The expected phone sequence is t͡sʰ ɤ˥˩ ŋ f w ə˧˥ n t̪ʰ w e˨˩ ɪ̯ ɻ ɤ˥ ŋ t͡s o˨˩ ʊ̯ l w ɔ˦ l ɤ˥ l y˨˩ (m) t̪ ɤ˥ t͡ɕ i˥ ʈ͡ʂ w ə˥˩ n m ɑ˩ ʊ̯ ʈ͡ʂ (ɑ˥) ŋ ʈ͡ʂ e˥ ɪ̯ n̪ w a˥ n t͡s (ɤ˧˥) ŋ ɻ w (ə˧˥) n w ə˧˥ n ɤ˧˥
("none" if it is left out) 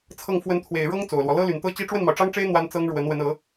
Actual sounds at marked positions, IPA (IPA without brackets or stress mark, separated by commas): n, ɑ˥, ɤ˥, ə˧˥